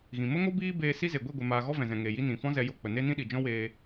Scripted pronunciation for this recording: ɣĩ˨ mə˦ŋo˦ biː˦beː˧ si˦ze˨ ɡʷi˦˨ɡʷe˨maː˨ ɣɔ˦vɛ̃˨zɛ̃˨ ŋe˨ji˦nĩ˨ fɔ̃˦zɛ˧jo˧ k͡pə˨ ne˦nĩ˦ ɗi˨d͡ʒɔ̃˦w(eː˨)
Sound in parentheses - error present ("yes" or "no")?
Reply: yes